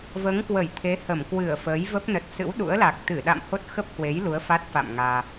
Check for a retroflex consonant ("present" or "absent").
absent